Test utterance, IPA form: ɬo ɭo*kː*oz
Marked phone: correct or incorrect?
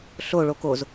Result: incorrect